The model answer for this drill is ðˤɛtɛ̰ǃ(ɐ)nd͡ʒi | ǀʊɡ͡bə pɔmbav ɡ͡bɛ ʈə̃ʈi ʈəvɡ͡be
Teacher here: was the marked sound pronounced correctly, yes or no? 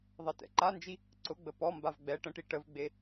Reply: no